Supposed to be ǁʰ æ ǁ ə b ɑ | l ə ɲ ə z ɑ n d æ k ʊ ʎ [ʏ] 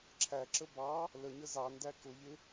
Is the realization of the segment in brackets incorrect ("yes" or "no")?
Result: yes